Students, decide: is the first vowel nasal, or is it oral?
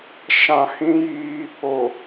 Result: nasal